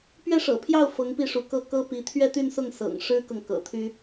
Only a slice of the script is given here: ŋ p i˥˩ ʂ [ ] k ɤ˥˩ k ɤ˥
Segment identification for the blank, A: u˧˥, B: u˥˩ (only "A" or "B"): A